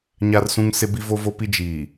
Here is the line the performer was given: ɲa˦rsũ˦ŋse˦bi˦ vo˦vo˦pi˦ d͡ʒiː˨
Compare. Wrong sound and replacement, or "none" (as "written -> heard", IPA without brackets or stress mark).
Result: none